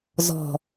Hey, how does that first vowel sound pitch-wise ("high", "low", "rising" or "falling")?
low